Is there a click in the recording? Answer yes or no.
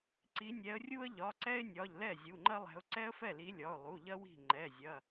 yes